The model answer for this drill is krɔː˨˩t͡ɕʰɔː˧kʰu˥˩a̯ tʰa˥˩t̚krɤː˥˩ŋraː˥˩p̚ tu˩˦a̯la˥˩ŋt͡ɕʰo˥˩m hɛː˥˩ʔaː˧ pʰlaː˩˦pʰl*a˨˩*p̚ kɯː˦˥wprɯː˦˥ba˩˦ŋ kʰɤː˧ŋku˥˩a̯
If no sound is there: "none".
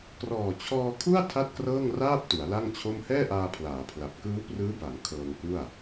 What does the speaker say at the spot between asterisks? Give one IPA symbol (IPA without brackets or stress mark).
a˨˩